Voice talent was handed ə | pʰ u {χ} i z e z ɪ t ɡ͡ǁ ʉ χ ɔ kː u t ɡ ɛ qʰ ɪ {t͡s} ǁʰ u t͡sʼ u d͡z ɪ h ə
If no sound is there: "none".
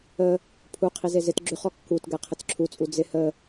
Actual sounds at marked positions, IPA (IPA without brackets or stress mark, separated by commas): qʰ, t͡s